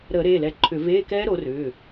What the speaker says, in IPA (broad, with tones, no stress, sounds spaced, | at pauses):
ɾ əː˧˩˧ ɾ eː˩˧˩ l ɛ˨˦ ǃʰ ʏ˧˩˧ v eː˧˥˧ k ɛː˦˥ ɾ o˨˦ r ʏː˩˧˩